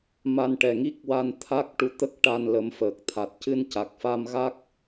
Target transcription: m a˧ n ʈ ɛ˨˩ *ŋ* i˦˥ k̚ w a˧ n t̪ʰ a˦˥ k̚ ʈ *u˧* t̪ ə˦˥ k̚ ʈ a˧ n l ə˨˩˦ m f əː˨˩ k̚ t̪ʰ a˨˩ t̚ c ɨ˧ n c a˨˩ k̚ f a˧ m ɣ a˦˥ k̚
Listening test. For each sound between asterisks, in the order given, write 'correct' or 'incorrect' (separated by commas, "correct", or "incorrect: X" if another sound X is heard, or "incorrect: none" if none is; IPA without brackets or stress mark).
correct, correct